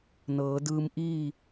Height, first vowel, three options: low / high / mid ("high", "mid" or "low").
mid